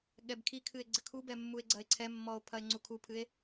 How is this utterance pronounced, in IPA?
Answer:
ɠɛbkʰikʰɨe̯ ɡ͡ǀɘkʰubɛmːue̯ ɡ͡ǀɐe̯ǀʰɛmːɔo̯ pʰɐe̯ŋ͡ǀukʰupʰɨe̯

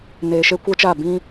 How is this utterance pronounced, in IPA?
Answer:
neː˨ʃe˦kʷɛ˦t͡ʃaː˦˨ bĩ˦

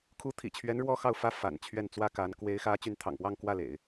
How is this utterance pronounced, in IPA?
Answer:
kʰu˧˥t̪ʰḭ˨˩t͡ɕʰɥɛ˧˥n ɻwɔ˥xɑ˥˩ʊ̯fä˥ fa̰˨˩nt͡ɕʰɥɛ˥˩nt͡swä˥ka˧˥n kwe˧˥ɪ̯xä˧˥ t͡ɕy˧˥nt̪ʰɑ̰˨˩ŋpwɑ˥˧ŋ kwä˥˩lḛ˨˩˦ɪ̯

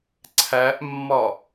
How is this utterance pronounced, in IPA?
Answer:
ǀʰæʔmːɒ

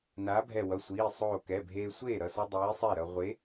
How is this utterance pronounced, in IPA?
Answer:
naː˨˥bʱɛ˧˩ wʌ˩˧˩sʷiː˩˧˩ sˤoː˧˩kɛ˩˧˩bʱeː˧ sʷeː˥˩ɾʌ˧˩sʌ˧ dˤiː˨˥sˤe˥˩ɾʌ˧ ʁʷe˨˥

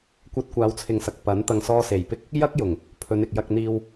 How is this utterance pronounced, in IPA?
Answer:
kʷɐ˧t̚kʷaː˨˧wt͡sʰɪ˨ŋsɐ˨k̚ pɐ˨˥n t̪ɐ˨ŋsɔː˧se˨˩jpɪ˥k̚ | jɐ˥k̚ jʊ˨˩ŋ | pʰɵ˨˧nɪ˨k̚jɐ˧k̚n̪iː˧w

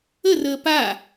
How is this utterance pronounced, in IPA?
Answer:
ərəː pa

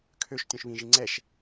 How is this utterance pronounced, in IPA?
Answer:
kʰøʃ tʲũʃβĩʒi ŋ͡ǀɛʃ

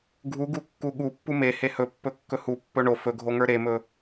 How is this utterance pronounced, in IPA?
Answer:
ɡʱuɡukːu ɠupːu mehe hɵpːɵkːɵ hupːɵ ɳo fɵɡʱoŋə˞ ɾemɵ

